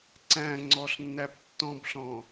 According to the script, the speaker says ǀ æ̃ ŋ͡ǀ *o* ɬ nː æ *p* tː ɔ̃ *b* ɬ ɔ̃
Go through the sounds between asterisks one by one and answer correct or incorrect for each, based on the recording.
incorrect, correct, correct

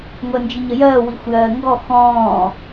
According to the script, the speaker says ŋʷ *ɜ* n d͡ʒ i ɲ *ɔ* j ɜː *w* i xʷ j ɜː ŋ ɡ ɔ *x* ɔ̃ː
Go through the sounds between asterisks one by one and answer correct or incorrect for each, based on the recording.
correct, incorrect, correct, correct

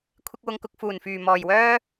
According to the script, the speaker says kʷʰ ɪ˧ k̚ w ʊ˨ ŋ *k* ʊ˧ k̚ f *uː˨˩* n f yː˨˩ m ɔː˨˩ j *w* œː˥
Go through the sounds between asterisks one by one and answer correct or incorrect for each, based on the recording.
correct, correct, correct

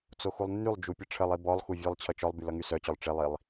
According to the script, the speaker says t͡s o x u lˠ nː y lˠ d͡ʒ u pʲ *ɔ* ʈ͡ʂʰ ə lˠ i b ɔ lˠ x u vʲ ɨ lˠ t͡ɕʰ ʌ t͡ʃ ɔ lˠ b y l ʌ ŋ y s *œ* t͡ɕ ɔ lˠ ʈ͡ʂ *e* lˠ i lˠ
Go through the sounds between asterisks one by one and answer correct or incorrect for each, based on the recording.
incorrect, correct, correct

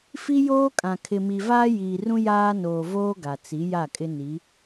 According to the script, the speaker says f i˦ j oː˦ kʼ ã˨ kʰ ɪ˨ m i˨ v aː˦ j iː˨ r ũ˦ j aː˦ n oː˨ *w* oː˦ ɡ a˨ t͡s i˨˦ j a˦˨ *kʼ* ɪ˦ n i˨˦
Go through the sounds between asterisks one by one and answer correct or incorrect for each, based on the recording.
incorrect, correct

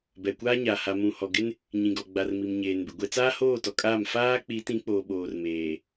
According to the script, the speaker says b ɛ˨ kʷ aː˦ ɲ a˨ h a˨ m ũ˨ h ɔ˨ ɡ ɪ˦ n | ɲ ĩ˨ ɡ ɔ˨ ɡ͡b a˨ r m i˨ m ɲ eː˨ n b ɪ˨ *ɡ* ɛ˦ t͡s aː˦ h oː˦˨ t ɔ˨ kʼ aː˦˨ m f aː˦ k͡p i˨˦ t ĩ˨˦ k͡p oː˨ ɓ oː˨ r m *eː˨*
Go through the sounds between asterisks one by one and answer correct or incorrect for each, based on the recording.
incorrect, correct

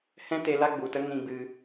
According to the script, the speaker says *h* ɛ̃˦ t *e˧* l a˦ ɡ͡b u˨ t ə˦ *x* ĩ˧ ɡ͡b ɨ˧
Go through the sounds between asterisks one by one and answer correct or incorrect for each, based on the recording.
correct, correct, incorrect

